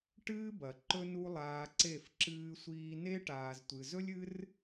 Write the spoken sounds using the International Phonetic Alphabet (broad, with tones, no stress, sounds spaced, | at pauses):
ʈ ɨː˦ b ɐ˨ ǃ ɵ˦ n u˦ lˠ aː˧ ǀ e˦˨ f ǁ ɨː˧ sʷ iː˧ n e˦ ʈ aː˧ z tʷ ɨ˧ z ɵ˦ lʲ ɨ˦ r